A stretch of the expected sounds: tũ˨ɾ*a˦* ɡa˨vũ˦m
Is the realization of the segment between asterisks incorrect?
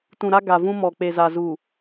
no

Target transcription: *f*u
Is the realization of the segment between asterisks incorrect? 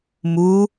yes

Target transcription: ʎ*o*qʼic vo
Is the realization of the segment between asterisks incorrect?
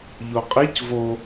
no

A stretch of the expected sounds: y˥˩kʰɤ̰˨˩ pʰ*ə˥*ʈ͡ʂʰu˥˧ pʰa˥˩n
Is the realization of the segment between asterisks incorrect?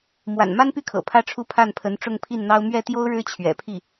yes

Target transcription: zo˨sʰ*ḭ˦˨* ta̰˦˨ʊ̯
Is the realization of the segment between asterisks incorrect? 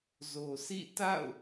no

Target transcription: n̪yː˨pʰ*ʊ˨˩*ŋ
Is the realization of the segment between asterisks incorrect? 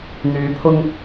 yes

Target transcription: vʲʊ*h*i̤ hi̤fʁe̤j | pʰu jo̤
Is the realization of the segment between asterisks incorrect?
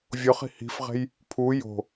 yes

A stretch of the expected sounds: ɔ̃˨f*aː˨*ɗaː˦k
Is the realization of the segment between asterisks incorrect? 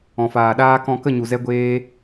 no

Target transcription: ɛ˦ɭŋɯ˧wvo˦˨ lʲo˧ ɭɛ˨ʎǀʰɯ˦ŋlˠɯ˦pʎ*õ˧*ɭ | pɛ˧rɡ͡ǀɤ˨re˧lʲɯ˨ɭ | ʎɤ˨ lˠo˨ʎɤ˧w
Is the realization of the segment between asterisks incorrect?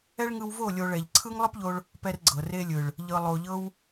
yes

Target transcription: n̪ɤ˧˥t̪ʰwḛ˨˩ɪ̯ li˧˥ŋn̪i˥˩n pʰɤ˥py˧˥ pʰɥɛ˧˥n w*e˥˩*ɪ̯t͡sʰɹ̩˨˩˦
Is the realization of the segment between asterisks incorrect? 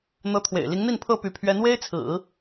yes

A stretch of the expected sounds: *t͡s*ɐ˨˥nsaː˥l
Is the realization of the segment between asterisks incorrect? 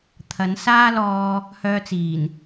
yes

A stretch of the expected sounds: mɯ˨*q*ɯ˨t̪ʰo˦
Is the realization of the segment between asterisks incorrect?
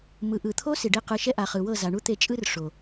yes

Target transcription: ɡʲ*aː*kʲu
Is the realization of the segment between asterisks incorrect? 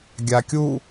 yes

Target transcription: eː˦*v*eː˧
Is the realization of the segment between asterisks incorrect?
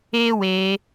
yes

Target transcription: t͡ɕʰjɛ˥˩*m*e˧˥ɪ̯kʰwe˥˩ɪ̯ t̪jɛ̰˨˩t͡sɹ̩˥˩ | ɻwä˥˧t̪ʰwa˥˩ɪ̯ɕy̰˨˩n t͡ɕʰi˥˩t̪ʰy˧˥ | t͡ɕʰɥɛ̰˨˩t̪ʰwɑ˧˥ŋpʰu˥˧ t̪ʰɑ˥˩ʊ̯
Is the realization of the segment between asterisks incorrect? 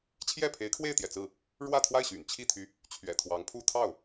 yes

